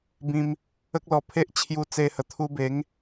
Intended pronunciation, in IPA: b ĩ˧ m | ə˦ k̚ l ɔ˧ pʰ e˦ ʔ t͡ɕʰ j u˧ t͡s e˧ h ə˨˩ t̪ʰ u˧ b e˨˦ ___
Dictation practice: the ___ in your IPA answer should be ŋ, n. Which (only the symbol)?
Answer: ŋ